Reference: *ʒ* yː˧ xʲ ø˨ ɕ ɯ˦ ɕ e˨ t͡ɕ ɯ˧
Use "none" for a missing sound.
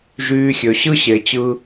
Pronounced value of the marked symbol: ʒ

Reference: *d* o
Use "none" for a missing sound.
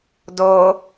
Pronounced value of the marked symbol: d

